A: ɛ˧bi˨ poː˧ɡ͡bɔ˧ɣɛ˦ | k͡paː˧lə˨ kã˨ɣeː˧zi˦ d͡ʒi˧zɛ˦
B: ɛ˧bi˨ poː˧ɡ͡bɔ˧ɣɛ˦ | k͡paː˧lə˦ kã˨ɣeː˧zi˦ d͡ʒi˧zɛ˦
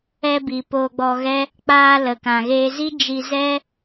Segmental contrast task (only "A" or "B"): A